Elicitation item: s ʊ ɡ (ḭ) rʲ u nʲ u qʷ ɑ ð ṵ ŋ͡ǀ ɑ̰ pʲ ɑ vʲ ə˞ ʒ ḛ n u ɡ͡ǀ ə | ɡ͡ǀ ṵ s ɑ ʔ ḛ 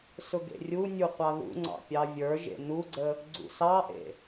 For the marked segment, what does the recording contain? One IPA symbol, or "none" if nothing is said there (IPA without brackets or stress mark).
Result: ḛ